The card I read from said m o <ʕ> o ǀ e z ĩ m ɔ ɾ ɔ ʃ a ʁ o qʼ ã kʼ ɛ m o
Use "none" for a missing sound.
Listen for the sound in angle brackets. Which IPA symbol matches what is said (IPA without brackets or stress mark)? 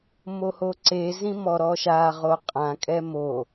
h